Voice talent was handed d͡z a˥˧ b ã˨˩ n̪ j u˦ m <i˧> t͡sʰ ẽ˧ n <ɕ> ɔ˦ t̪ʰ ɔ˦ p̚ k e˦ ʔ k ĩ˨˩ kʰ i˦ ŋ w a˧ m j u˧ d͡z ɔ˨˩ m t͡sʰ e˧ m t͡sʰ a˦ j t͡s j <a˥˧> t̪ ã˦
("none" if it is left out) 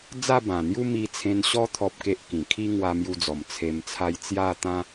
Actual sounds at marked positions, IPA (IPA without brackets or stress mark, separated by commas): i˧, ɕ, a˥˧